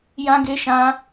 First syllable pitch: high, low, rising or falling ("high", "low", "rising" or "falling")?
high